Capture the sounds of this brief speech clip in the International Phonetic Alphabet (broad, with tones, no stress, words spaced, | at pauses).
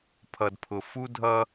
pʰʌ˨dpʰʊ˨ fu˦dʱʌ˦